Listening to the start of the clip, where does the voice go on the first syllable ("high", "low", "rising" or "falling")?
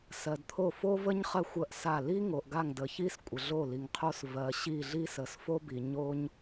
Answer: low